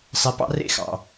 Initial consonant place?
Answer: alveolar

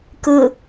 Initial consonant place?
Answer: velar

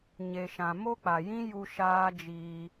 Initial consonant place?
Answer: palatal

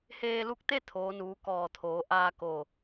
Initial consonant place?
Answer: glottal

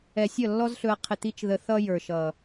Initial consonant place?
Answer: alveolar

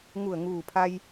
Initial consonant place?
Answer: velar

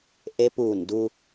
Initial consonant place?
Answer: glottal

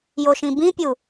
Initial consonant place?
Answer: palatal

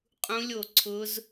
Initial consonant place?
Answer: uvular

